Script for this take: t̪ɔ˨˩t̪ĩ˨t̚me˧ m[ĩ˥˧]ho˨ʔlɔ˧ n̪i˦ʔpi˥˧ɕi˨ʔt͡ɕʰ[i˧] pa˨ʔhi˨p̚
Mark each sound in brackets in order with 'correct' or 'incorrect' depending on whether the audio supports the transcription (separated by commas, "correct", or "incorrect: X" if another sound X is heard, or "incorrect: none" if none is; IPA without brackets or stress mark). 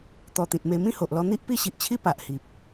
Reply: correct, incorrect: i˦